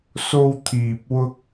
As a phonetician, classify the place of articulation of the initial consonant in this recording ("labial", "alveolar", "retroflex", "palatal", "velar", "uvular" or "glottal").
alveolar